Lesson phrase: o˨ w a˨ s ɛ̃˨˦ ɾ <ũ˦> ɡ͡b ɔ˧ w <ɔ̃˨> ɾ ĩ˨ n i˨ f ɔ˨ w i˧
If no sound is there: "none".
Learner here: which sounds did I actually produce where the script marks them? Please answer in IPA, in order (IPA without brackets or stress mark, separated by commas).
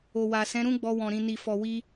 ũ˦, ɔ̃˨